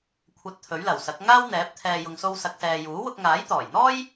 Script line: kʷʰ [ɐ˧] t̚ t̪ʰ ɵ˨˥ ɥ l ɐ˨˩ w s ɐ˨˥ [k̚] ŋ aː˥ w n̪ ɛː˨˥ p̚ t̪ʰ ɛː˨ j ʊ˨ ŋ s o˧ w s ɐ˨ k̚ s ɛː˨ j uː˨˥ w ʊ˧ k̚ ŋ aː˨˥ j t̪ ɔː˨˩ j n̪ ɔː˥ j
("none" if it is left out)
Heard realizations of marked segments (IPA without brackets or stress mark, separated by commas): ɐ˧, k̚